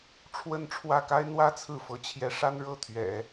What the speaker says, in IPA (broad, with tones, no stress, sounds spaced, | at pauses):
ʈ͡ʂʰ w ə˥˧ n ʈ͡ʂʰ w ä˥˩ k a˥ ɪ̯ n̪ w ä˥ t͡sʰ ɹ̩˥˩ f ɤ˧˥ t͡ɕʰ j ɛ˧˥ ʂ a˥ n ɻ ɤ˥˩ t̪ʰ ɥ ɛ̰˨˩˦